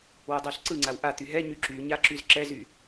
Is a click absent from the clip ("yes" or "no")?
no